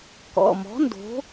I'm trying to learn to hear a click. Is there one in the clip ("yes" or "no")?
no